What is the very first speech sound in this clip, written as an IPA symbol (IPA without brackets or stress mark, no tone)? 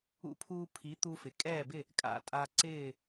ṵ